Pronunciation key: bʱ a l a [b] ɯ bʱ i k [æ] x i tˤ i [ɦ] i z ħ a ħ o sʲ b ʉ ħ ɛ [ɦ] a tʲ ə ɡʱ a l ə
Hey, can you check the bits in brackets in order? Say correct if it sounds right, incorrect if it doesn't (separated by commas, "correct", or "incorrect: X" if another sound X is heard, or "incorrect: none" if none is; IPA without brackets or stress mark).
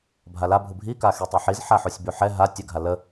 incorrect: bʱ, incorrect: a, incorrect: ħ, correct